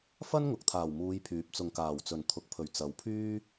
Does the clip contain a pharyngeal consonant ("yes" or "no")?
no